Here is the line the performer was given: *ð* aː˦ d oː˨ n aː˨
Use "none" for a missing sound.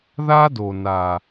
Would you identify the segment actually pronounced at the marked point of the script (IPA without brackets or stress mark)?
ð